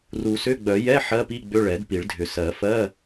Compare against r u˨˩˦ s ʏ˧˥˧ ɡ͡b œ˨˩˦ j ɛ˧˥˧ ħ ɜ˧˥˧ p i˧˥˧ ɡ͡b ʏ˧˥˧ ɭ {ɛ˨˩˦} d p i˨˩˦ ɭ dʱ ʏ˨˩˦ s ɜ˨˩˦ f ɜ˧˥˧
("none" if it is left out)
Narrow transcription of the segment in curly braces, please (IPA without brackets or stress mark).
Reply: ɛ˨˩˦